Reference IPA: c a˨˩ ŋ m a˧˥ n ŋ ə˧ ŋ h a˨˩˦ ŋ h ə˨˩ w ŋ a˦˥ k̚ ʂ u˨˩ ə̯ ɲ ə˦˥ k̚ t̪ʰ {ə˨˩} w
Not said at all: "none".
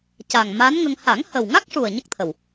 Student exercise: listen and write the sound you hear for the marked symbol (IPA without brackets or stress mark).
ə˨˩